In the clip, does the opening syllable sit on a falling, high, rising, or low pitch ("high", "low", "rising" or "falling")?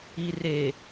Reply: low